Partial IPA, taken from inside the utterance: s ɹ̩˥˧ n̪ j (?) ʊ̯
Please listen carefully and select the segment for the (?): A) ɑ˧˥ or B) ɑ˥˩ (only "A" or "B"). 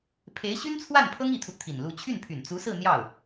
B